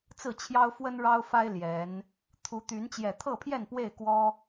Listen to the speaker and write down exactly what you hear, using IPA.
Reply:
t͡s ɹ̩˥˨ t͡ɕʰ j ɑ˦ ʊ̯ f w ə˦ n ɻ ɑ˦ ʊ̯ f a˦ ɪ̯ l j ɛ˨˦ n | t̪ʰ u˨˦ t̪ y˨˦ n t͡ɕ j ɛ˨˩ t̪ʰ ɤ˥˨ pʰ j ɛ˥˨ n p w e˥˨ ɪ̯ k w ɔ˦

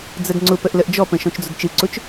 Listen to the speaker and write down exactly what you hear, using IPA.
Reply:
d͡z ə d ŋ͡ǀ ʊ p ə ʔ l ə ʔ d͡ʒ ɔ p ə̃ ʃ ɔ̃ t͡ʃ d͡z ʊ d t͡ʃ ɨ ǀ ʊ t͡ʃ

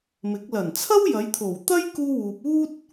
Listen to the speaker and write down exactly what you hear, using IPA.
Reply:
m ɪ˨˥ k̚ l ɐ˨˩ n t͡sʰ ɐ˥ w j ɐ˨˧ j t̪ʰ o˨˩ w t̪ ɐ˥ j k uː˥ w uː˧ p̚ uː˥ t̚

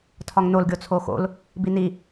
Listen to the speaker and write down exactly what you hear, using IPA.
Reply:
tʰ ɒ ŋ n o l ɡʲ o t͡sʰ o x o̰ l | b i n i

